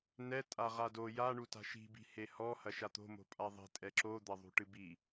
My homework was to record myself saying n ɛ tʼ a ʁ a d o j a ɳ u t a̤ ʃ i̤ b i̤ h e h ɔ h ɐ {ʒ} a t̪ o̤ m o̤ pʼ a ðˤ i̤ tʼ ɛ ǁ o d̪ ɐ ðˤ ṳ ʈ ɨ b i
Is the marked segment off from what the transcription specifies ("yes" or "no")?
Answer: yes